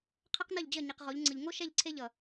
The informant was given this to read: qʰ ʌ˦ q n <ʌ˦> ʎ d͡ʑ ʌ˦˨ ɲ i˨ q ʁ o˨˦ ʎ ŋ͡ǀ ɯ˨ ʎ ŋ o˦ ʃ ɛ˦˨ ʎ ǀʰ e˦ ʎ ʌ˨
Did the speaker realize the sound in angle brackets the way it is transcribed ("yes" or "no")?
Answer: no